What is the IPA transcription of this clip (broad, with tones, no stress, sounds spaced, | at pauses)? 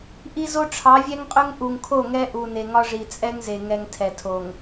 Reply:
ʔ i˦ z o˦ ʈ͡ʂʰ ɑ˨˦ vʲ ɛ˦ ŋ qʼ ɵ˦ ŋ ʔ u˨ ŋ kʰ o˦˨ ŋ ɛ˦ ʔ u˨ n e˨ ŋ ɒ˦ ʐ i˨ t͡sʼ ɛ˦ ŋ z e˨ ŋ ɛ˨ ŋ tʰ ɛ˨ tʰ o˨ ŋ